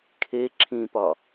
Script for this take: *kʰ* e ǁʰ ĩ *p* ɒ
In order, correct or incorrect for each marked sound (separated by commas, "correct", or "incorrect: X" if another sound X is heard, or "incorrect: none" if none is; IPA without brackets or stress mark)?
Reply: correct, correct